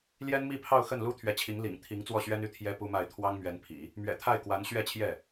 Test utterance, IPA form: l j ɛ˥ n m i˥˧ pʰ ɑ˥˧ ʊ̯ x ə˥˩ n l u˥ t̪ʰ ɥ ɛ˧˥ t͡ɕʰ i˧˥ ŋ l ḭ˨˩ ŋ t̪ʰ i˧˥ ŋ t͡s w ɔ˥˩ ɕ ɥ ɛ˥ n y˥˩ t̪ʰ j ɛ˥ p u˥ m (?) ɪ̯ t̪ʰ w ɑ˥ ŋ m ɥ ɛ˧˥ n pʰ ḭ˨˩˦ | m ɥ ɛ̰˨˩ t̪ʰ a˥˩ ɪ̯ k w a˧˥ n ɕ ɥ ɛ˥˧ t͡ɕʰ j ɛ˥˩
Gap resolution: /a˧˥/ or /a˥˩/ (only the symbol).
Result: a˥˩